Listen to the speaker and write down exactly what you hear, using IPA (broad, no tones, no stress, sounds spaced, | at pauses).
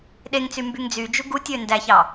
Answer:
ɗ e ŋ t͡s y m b y ŋ d͡z y d͡ʒ u ɡ u tʲ ø n d æ ç ɑ